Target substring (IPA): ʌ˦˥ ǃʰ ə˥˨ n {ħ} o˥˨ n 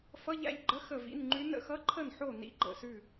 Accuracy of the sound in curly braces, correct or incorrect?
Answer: correct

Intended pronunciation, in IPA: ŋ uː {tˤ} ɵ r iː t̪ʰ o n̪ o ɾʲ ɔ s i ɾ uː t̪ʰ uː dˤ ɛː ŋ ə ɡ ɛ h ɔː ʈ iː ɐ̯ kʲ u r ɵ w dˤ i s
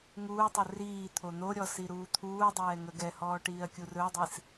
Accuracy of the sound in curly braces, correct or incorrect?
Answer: correct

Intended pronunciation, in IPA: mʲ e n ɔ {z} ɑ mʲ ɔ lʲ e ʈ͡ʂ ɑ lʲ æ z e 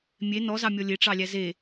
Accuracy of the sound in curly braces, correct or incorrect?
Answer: correct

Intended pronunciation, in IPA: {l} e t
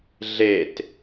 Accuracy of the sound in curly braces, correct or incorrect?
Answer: incorrect: ɮ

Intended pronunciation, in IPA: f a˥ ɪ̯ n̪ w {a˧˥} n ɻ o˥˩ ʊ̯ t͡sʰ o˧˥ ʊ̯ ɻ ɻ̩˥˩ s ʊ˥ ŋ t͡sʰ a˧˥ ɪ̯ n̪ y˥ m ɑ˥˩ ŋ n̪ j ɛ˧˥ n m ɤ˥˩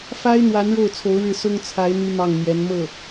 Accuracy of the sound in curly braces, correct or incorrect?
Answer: correct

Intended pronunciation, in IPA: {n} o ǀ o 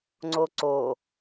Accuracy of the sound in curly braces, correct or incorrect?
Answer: incorrect: ŋ͡ǀ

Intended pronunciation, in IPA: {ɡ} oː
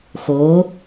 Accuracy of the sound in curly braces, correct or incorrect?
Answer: incorrect: x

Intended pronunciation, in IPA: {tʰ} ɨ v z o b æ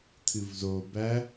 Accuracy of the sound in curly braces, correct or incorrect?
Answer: correct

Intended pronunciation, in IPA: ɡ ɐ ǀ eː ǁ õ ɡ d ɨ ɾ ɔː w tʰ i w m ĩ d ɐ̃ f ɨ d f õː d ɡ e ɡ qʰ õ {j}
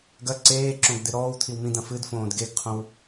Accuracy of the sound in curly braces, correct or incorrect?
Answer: incorrect: w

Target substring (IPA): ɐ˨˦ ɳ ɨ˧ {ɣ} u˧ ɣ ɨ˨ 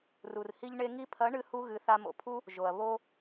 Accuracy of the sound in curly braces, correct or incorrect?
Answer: incorrect: h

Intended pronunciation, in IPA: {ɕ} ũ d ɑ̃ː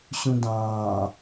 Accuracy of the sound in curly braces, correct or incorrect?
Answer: correct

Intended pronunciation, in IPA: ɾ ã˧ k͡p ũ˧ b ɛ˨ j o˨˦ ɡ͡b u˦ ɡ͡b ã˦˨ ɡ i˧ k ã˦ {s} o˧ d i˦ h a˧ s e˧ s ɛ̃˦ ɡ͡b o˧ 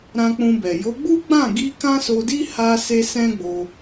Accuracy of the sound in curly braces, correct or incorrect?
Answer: correct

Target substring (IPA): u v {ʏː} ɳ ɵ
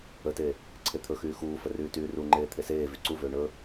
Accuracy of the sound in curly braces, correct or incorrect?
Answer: correct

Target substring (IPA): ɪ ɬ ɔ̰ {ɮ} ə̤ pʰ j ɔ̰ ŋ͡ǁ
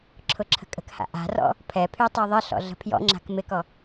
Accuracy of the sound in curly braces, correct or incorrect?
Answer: correct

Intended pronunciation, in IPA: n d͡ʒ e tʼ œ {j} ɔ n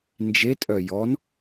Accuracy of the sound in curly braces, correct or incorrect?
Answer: correct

